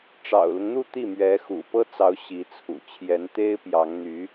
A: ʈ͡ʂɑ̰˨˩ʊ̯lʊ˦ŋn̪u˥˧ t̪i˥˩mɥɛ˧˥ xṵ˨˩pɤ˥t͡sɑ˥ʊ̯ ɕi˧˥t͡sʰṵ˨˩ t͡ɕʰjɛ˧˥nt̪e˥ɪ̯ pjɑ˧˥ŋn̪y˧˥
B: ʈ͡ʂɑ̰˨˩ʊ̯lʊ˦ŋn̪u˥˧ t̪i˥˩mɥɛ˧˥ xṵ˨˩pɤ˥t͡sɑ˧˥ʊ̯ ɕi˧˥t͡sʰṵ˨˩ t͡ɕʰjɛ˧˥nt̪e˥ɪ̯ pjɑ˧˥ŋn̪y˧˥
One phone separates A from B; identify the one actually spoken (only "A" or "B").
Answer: B